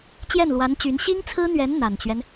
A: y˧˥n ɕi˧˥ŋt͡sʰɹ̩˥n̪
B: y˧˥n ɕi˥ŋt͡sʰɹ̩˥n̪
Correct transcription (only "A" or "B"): B